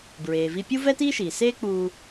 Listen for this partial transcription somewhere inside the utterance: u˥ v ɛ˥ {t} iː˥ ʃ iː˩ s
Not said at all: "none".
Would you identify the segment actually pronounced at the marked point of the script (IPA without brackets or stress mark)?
t